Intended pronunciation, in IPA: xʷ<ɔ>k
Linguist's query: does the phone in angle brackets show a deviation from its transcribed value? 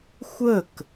yes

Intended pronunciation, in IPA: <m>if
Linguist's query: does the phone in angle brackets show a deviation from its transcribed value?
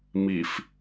no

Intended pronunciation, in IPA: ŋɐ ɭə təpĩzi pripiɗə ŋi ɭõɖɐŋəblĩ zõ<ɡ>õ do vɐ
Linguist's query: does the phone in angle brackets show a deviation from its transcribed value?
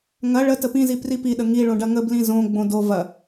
yes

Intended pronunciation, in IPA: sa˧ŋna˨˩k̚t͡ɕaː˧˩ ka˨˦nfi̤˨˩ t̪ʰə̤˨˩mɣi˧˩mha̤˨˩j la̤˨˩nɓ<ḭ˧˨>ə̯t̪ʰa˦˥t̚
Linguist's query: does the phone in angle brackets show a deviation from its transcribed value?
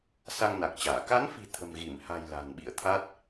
no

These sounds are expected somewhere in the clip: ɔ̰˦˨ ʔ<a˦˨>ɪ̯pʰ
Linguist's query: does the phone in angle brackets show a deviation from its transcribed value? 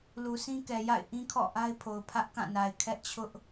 yes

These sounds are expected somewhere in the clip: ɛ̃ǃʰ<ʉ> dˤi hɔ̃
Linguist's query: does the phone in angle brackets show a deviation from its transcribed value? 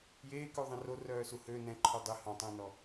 no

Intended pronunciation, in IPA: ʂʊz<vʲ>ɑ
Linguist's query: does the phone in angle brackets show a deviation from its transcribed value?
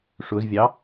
no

